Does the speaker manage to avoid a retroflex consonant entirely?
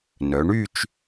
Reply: no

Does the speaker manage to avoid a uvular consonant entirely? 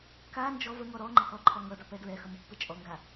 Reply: yes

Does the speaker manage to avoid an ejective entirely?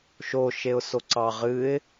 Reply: yes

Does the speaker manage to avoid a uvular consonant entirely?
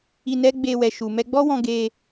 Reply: yes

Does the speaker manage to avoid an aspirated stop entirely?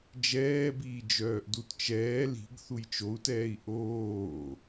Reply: yes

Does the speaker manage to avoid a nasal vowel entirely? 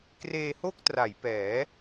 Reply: yes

